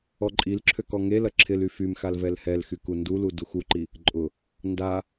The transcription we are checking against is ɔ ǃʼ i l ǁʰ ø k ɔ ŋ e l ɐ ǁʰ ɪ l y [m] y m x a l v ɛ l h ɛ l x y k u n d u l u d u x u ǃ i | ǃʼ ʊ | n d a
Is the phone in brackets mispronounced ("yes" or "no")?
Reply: yes